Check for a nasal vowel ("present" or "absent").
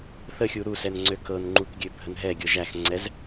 absent